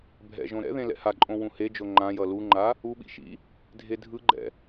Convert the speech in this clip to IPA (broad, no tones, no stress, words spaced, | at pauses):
bʱɛ̰ʒõ ɾɛ̰ðẽ lɛ̰haǃʼõ wũhed͡ʒo ŋ͡ǃã jʌluŋ͡ǃa | uɓḭ ʃḭ | dʱedʱɯɡ͡ǃɛ̰